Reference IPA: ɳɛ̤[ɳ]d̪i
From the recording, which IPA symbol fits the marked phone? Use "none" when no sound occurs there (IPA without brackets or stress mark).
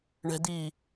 none